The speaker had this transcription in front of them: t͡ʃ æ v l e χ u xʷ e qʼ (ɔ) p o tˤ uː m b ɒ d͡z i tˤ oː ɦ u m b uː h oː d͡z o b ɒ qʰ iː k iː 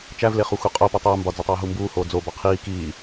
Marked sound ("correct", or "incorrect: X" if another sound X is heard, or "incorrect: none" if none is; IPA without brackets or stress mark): incorrect: o